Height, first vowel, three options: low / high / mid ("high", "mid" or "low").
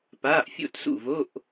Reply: low